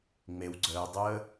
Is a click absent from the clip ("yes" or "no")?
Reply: no